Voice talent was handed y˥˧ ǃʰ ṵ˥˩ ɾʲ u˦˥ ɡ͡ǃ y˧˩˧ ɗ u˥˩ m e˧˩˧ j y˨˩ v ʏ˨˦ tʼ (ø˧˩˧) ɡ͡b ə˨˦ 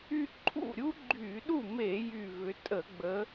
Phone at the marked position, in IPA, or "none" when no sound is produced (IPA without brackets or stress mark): ə˧˩˧